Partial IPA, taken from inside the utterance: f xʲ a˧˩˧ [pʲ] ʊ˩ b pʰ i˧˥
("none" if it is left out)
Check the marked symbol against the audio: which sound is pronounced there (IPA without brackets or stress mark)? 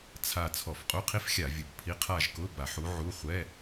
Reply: vʲ